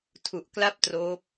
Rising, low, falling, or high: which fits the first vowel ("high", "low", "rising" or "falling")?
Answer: low